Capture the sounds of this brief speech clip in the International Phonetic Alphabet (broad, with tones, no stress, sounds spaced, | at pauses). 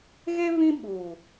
ɣ e˦ β ĩ˦ ɓ uː˨